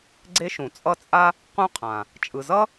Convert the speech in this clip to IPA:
ɡ͡ǀ e˦ ʃ ũ˩ t͡sʼ ʌ˦ t͡sʼ a˥ | q ũ˦ qʰ ã˩ | t͡ʃʼ ɯ˨ z ʌ˥

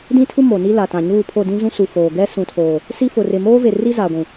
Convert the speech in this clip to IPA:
d ĩ˦ tʰ u˦ m o˨ n i˦ l a˨ t ã˨ ɲ uː˦˨ pʰ o˦˨ d ĩ˦ z ũ˦ s u˨ f oː˨ ɡ ɛ˦ s ũ˨ tʰ oː˨ | s i˦ f ʊ˨ r ɪ˨ m oː˦ v e˨ r i˦ z a˨ ɡʷ ũ˨

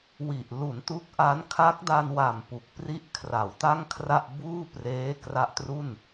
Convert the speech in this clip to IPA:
w i˨˩ ʔ l u˩˦ n t u˦˥ k̚ ʔ a˦˥ n kʰ a˦˥ k̚ d a˧ n w a˨˩ m p u˨˩ k̚ p r i˥˩ ʔ kʰ r a˩˦ w t a˥˩ ŋ kʰ r a˥˩ ʔ b uː˥˩ p r eː˦˥ k r a˦˥ ʔ t r u˥˩ n

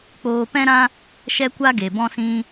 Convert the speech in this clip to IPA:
k͡p oː˧ p ɛ̃˦ ɾ ã˦ | ʃ ɛ˦ kʷ a˦ ɡ e˨ b ɔ̃˦ s ĩ˦

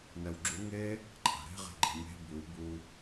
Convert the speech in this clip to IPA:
n ɛ w ɡ͡ǁ u ŋ e | ǃʼ a̤ ɾ e̤ ʁ e̤ ɡ͡ǃ e̤ mʲ e̤ b ʉ w b u

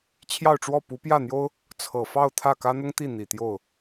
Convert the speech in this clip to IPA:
t͡ɕʰ j ɑ˥˧ ʊ̯ ʈ͡ʂ w ɔ˥˩ p u˧˥ p j ä˥˩ n̪ j o˥ ʊ̯ | t͡sʰ ɤ˨˩ f ɑ˥˧ ʊ̯ t̪ʰ ä˥˩ k ä˥ n̪ ʊ˥ ŋ t̪ i˥˩ n̪ i˨˩ t̪ j o˥˩ ʊ̯

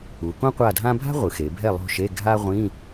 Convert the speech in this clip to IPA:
u˩˧ k õ˥ qʷ a˦˨ dʱ ã˥ bʱ a̤˥ ʁʷ ɯ˩˧ x e˩˧ bʱ ɛ˦˨ lˠ o̤˦˨ ʃ e˧˥˧ ɡʱ a˥ ʁʷ ĩ˧˥˧

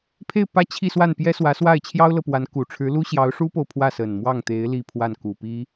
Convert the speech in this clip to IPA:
pʰ e˥˧ ɪ̯ p ä˥˧ t͡ɕʰ i˥˧ s w a˥˩ n p j ɛ˥ s w ä˧˥ s w a˥˩ ɪ̯ t͡ɕʰ j ɑ˥ ʊ̯ l ɤ˨ p w a˧˥ n k u˨˩ ʈ͡ʂʰ ɻ̩˧˥ l u˥ ɕ j ɑ˧˥ ʊ̯ ʂ u˥ p o˨ ʊ̯ pʰ w ä˥˩ s ə˨˩ n m w ɑ˥˩ ŋ t̪ e˧˥ ɪ̯ l i˥˧ pʰ w a˥˩ n k u˨˩ p i˥

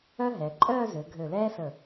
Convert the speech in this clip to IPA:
œ˥ ɦ ɛ˩˧ ǃʼ œː˥˧ z ø˩˧ ɡʱ ø˧˩ l ɛː˥ s ə˧˩

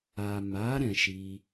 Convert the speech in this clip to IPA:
a˨ m a˨˦ ɾ ɛ̃˧ ʃ i˦

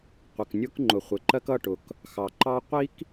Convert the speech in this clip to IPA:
qʷ ə˨ k nʲ ʊ˦ k ŋ͡ǃ ʊ˨ χʷ ɪ˨ ǃ ɜ˦ k ʌ˦˨ ʈ ʊ˨ k | x ɑ˨ ǃ ɑ˦ qʷ i˦ k

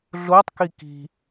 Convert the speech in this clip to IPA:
ɮ o tˤ k i k i̤

